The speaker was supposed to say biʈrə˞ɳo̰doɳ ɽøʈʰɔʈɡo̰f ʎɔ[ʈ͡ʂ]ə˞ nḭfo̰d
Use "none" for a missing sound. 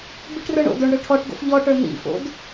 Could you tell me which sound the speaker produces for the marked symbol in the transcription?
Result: ʈ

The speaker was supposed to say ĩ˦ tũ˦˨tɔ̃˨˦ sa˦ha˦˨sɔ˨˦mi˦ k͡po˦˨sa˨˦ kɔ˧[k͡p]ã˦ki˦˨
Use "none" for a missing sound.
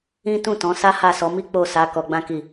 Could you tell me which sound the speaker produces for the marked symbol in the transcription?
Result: ɡ͡b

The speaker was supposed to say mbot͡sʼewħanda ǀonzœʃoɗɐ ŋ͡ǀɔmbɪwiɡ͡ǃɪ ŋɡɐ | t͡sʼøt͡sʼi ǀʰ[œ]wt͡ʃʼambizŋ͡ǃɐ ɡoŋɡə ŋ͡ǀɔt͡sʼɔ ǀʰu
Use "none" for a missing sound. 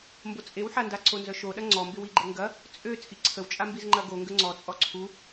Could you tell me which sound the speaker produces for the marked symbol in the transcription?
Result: ə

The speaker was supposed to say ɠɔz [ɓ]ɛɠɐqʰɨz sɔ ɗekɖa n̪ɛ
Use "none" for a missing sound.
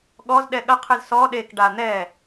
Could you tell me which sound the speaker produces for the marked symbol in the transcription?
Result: ɗ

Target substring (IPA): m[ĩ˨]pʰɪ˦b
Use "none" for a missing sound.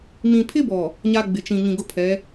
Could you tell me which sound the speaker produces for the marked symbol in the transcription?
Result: ĩ˨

